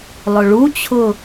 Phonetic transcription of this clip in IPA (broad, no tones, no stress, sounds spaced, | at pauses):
lˠ ʊ ɭ u t͡ɕʰ ʊ